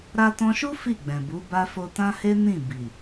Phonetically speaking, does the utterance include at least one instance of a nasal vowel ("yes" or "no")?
yes